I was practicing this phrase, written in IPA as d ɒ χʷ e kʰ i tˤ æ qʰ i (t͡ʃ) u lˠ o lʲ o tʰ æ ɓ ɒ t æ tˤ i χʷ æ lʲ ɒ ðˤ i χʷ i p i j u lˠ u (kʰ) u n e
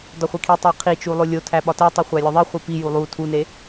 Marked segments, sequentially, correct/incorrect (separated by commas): correct, incorrect